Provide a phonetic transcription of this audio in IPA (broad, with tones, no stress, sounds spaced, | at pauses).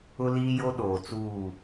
ʊ˦ l iː˦ j o˦ ɗ oː˨ t͡s uː˦˨